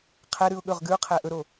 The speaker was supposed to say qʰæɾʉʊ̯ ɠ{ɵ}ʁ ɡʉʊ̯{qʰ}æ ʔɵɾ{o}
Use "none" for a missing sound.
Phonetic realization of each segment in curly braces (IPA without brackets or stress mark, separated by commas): ɵ, qʰ, o